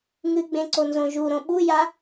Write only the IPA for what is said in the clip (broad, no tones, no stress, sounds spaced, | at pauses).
ŋ ɨ ɡ͡b ẽ ǀ o n z õ ʒ u ɾ õ ɓ u j a